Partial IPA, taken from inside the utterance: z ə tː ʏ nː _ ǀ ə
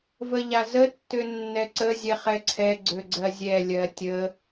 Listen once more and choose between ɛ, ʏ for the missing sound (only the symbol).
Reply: ɛ